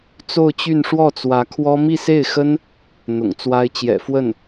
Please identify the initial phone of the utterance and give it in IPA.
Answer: t͡s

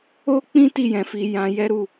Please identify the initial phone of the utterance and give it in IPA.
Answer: o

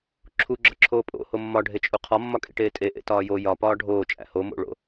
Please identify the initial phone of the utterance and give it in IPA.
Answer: ǁʰ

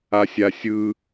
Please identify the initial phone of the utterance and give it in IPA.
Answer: a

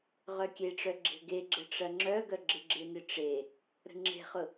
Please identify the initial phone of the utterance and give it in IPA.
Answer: ʁ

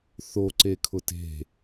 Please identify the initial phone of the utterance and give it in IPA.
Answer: θ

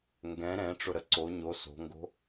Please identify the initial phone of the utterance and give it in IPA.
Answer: ŋ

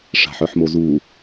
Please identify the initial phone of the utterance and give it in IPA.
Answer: ʂ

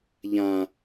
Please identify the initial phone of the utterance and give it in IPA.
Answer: ʎ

